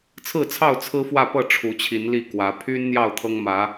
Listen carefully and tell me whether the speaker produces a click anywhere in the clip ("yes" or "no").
no